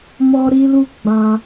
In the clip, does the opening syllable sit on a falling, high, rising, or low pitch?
high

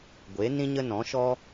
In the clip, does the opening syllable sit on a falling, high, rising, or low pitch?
rising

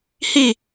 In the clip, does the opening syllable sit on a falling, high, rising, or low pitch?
falling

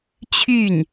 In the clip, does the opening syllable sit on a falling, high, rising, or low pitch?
falling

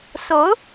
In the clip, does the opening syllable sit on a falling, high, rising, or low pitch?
rising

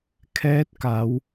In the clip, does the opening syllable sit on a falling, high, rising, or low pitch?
rising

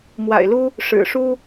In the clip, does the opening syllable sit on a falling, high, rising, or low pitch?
low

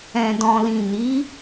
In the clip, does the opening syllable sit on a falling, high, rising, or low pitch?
low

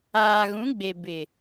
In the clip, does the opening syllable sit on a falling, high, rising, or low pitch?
low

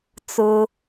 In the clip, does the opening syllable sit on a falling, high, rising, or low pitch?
low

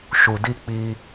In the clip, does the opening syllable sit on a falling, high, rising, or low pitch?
low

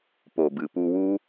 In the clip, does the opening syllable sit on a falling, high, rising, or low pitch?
low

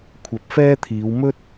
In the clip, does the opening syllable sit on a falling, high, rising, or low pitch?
rising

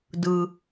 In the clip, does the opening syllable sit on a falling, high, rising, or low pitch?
high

